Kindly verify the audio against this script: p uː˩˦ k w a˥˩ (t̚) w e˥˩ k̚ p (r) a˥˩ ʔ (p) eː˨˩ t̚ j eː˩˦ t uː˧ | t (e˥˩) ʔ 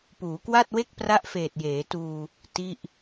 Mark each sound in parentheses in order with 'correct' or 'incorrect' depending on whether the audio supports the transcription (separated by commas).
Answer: correct, correct, incorrect, incorrect